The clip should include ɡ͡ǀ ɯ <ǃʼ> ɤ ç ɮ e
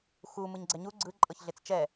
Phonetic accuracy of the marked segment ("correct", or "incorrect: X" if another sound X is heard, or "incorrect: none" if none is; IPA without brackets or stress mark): correct